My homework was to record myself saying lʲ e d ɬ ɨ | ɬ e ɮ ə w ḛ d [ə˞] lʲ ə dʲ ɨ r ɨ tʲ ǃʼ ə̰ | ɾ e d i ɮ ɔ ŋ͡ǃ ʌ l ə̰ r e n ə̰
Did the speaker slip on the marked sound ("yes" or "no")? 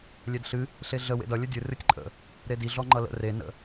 yes